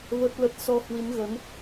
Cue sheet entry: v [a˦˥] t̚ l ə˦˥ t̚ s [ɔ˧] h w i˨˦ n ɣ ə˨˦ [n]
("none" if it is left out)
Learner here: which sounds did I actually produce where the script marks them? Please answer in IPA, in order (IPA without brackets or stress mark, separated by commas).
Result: ə˦˥, ɔ˧, n